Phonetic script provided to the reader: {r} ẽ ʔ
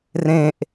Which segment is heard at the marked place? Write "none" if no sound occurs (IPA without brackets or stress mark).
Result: r